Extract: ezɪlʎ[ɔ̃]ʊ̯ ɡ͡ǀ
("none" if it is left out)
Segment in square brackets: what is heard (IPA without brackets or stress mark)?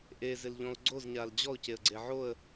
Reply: ɔ̃